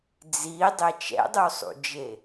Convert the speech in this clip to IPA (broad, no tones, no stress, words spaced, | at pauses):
d͡zidˤe t͡ʃɛ̰dˤusˤṵd͡ʒe